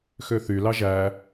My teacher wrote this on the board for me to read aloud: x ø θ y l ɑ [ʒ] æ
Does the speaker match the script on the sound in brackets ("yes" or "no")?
yes